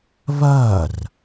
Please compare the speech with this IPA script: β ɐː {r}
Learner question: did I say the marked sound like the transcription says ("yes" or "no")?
yes